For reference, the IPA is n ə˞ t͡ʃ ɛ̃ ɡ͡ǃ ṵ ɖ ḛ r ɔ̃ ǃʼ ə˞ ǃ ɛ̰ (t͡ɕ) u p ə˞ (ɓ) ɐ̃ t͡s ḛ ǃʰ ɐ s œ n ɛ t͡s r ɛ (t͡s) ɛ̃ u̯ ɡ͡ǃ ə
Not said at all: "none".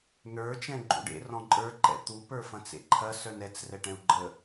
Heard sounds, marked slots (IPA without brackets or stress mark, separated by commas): t̪, f, ʈ